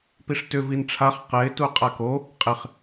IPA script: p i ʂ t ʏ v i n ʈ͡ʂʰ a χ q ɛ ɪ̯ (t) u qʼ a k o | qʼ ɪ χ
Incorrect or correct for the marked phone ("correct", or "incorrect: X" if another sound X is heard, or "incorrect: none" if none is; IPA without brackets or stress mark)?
correct